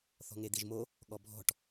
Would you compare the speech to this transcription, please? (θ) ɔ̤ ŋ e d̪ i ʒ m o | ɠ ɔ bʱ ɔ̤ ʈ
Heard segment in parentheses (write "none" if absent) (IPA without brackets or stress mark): θ